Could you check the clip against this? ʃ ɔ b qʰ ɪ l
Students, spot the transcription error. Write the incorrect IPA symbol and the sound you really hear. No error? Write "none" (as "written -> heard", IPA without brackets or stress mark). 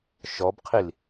ɪ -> i